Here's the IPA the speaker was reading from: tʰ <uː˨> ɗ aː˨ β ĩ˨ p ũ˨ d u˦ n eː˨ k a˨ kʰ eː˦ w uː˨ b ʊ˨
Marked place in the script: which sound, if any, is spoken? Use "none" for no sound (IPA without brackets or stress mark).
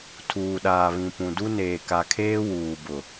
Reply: uː˨